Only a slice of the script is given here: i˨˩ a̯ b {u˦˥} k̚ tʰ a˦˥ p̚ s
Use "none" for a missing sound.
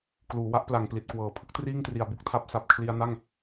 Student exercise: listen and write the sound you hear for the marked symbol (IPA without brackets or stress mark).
u˥˩